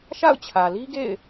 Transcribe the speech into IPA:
ʃ a̰˦˨ ʊ̯ t͡ɕʰ ä˨ l i˦ ɡ ḛ˦˨ ɪ̯

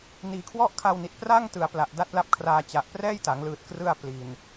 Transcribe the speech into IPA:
n iː˨˩ kʰ w ɔ˥˩ ʔ kʰ a˧ w n i˨˩ t̚ p r a˥˩ ŋ t ɯ˨˩ a̯ p l a˨˩ ʔ d a˦˥ t̚ l a˦˥ p̚ kʰ r aː˧ t͡ɕ a˨˩ ʔ p r ɛː˥˩ j t a˩˦ ŋ l ɯː˨˩ t̚ k r ɯ˧ a̯ p l i˨˩ n

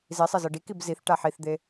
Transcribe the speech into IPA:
z i sˤ e z ɤ ɖ i k i b z i θ ʈ a ħ i θ d̪ e

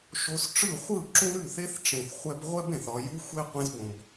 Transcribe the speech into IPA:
ʃ o˧ s ʈ͡ʂ ɯ˦˨ χʷ ɯ˦˨ ǁ ũ˦ ɾ ʉ˦˨ θ e˦ θ ʈ͡ʂ ẽ˨ θ χʷ ɛ˧ b ʁʷ ɛ˦ b ẽ˨ θ ɒ˨ j u˦ xʷ e˦ qʷ ẽ˧ z b õ˨ b

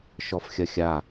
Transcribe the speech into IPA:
ʃ ɔ f xʲ ɐ xʲ a

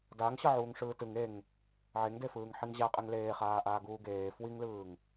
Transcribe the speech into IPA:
d a ŋ ɕ ʌ ʕ uː ŋ ʂ ɯː t ɯ ŋ e ŋ | ʕ e ŋ d e f ɯː ŋ ħ i ŋ ʑ a qʼ ɛ ŋ l eː χ aː ʔ aː ɡ uː ɡ eː f w i ŋ l ɯː ŋ

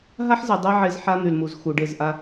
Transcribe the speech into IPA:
ɦ a˦ ħ z ɛ˨ dˤ e˦ ʕ e˦ z ħ a˦ n̪ y˨ l m u˨ z x u˨ ɖ e˦˨ z ʔ a˦

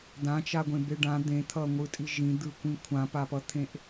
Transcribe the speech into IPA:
d̪ ã t͡ʃ a ɡʷ ẽ b e ɖ ã d̪ ẽ t̪ʰ ʌ ŋʷ ɯ tʼ i ʒ ĩ d̪ ɯ kʷ ĩ kʷʰ ã p a p ʌ t̪ʰ ẽ ʔ

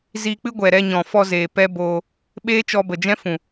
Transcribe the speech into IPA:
z iː˧ k͡p ɨ˦ ɡʷ ɛ˨ ɾ ɛ˧ ɲ ɔ̃˨ f ɔ˧ z eː˨ p ɛ˦ b oː˧ | ɓ eː˦ t͡ʃ ɔ˧ b ə˨ d͡ʒ ɛ̃˦ f ũ˨

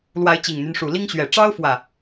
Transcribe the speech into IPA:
l w a˨˦ ɪ̯ t͡ɕ i˨˩ ŋ n̪ y˦ n ʂ u˨˩ l i˦ ŋ ɕ ɥ ɛ˨˩ ʈ͡ʂ ɑ˦ ʊ̯ f w ä˨˩

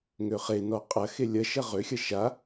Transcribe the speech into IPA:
ŋ ø χ e n ɔ qʼ ɐ x e lʲ ɐ ʃ ɐ ʁ ø xʲ ɐ ʃ a

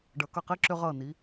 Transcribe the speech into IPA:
ɖ ʌ˩˧ k ʌ˧˩ q i˥ ǁ ʏ˧ ʁ ʌ˧˩ n i˩˧

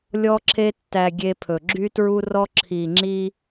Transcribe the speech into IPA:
lʲ ɔ˧ ǁʰ e˧ tː æ˨ ɡʲ e˧ pʰ ɵ˨ ɡ͡ǁ y˦ t ɹ u˦ r ɔ˦ ǁʰ i˨ ŋ͡ǁ i˧

